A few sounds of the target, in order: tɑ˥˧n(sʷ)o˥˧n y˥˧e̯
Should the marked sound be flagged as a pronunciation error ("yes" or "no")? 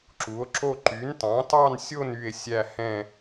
yes